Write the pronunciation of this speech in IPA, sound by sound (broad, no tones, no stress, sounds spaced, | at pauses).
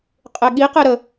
qʼ e ɠ i q e ɾ ə